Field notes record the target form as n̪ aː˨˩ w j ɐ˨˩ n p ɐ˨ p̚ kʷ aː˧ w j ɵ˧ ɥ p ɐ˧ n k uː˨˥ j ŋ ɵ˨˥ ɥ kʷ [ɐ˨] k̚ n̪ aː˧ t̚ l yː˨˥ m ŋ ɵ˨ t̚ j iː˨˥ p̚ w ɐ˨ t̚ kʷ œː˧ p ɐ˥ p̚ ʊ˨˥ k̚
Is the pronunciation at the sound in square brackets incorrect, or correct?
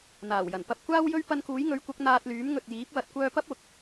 incorrect